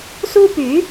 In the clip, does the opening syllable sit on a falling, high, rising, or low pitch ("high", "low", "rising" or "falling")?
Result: high